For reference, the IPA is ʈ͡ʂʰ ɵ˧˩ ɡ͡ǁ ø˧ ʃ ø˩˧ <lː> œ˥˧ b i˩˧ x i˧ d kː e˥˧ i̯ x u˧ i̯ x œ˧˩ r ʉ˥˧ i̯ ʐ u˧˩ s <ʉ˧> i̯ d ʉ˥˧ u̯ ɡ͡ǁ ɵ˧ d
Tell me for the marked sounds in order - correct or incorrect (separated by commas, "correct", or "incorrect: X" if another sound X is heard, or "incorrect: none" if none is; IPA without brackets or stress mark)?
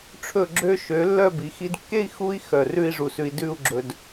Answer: correct, correct